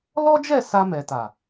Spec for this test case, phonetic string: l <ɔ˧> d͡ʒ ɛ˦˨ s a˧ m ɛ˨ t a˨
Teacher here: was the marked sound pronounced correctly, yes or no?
no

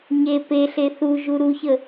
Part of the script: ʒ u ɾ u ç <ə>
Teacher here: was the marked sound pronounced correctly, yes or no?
yes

